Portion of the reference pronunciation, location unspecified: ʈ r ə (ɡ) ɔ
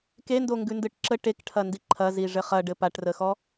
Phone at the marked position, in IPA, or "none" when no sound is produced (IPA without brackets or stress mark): x